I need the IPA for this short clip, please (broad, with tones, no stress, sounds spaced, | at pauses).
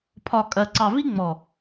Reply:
pʰ ɒ˨ kʼ ɜ˨ ǀ ɑ˨ v i˦ ŋ͡m ɔ˨